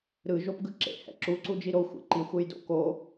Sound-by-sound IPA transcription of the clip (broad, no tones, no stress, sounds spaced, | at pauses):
ɾ ɯ ʒ o p ɡ ɯ ǁ ḛ h ɛ̰ ǁ u ǀ u d͡ʒ i ɾ o xʷ ḛ ǃ i xʷ e j d o̰ k o